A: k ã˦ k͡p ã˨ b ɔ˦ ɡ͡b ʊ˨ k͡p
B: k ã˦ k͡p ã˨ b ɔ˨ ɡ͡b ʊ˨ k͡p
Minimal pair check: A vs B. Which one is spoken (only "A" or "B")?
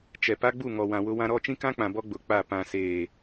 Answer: A